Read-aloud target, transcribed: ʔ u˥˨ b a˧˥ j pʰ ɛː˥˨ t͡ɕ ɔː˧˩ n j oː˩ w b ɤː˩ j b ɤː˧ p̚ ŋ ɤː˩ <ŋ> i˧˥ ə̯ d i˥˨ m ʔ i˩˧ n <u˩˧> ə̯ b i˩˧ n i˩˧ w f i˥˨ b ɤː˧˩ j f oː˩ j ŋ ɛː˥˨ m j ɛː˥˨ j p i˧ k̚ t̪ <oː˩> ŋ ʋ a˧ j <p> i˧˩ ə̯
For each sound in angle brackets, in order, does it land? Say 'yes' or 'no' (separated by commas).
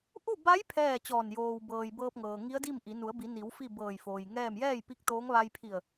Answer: yes, yes, no, no